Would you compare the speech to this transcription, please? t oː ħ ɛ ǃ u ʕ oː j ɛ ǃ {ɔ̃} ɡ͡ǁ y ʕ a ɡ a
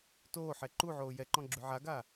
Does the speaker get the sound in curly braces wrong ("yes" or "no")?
no